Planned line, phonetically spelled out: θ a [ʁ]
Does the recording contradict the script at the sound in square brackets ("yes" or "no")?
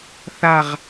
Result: no